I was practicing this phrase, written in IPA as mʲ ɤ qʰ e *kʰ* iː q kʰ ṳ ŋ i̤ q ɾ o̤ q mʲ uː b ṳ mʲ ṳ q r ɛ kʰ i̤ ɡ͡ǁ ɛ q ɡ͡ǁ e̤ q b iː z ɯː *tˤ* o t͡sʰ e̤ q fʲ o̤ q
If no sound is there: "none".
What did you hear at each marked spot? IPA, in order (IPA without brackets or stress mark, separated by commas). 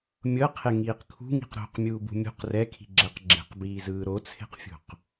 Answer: ŋ, ɾ